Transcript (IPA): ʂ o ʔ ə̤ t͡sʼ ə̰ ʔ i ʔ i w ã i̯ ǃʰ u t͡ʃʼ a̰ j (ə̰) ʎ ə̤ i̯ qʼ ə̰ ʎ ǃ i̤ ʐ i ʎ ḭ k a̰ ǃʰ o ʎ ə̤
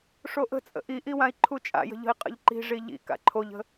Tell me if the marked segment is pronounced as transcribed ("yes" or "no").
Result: no